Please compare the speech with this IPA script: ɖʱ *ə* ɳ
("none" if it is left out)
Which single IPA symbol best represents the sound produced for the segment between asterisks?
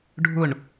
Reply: ʊ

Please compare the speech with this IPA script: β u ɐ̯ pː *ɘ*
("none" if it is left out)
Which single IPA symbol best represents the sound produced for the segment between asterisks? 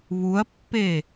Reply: e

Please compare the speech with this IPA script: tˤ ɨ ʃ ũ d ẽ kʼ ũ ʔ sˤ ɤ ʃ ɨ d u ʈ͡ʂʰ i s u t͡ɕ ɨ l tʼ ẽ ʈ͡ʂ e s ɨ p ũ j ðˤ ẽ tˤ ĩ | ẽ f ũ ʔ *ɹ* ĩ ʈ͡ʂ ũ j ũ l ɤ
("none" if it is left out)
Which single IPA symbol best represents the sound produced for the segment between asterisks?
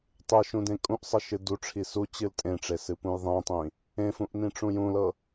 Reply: n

